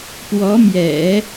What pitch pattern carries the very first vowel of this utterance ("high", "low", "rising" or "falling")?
rising